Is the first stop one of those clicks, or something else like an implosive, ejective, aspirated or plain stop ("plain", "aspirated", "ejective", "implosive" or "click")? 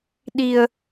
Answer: implosive